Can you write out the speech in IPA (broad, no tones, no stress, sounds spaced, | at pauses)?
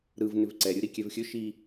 ɾ ɯ v n ʏ v ǀ ɛ ɾʲ ɯ ɾ i kʲ ɛ v xʲ ɵ ʃ i